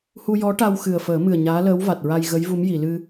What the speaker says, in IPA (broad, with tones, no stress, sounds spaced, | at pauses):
h u˧ j ɔ˧˥ ʈ a˧ w x ɨ˨˩ ə̯ f əː˨˩˦ m ɨ˨˩ ə̯ ɲ aː˧˥ l əː˧˥ w v a˨˩ t̚ ɹ a˧ j ɣ ə˧˥ j v u˧˥ m j i˨˩˨ l ɨ˧